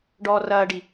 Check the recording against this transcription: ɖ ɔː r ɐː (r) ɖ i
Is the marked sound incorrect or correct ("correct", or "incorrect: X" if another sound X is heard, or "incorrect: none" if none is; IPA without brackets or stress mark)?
incorrect: none